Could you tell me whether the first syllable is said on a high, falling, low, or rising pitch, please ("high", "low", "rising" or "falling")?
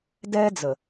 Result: high